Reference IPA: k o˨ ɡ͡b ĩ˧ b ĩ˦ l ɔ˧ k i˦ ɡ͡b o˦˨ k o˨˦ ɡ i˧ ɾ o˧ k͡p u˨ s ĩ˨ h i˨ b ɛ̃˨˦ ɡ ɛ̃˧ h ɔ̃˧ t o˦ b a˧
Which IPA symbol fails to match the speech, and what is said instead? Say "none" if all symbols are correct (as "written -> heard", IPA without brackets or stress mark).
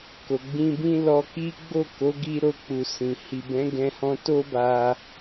none